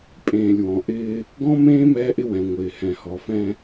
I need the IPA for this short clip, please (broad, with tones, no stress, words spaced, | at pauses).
pʼẽː˨lʲwɔ̃˨ ʔɪː˦ | ɡɔ̃˦mẽː˦ mɛː˦ʔɪ˦wɛ̃˨ ŋʷɪː˨ hɛ̃˨hɔ˨fɛ̃˦